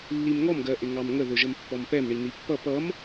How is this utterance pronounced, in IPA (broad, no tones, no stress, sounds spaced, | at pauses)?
lː i m ŋ ɔ m ɡ ɜ ʔ ɪ ŋ ɑ m ŋ ə ð ʊ ʒ ə m pː ɔ m p ɛ m ɳ i n̪ i pː ʌ p ʌ m